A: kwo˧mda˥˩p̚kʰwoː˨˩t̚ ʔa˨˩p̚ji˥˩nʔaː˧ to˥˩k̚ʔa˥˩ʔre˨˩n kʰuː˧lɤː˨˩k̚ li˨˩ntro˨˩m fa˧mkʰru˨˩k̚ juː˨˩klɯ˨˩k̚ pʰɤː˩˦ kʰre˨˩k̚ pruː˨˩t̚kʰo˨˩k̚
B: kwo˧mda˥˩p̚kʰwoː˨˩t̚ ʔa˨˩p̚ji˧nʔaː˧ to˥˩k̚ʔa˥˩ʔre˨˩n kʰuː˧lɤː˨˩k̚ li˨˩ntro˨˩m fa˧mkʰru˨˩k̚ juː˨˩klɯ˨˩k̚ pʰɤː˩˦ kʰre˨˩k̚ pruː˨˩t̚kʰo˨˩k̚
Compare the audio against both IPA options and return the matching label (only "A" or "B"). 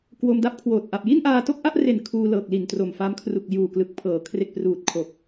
A